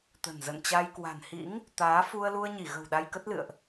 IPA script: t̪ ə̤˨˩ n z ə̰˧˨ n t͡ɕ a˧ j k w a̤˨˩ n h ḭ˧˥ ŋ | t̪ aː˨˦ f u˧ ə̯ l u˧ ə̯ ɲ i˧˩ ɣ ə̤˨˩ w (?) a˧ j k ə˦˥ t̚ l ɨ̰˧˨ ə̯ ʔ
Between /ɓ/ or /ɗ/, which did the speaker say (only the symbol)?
ɗ